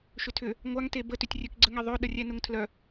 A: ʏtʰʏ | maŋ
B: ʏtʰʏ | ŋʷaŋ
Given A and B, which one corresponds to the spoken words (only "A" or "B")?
B